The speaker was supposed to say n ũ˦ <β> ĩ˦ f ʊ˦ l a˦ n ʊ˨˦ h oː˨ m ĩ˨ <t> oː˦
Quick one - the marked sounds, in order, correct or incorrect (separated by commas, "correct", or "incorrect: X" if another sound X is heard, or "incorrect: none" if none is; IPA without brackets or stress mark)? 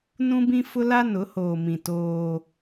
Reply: incorrect: b, correct